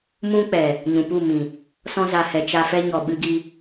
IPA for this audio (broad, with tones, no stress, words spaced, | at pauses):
mũ˦ k͡pɛ˨ | ɲũ˨pu˦˨mĩ˨ | sɔ̃˧za˨hɛ˨ t͡ʃa˧fɛ˦ ɲɔ˨ɓɨ˧ɡi˧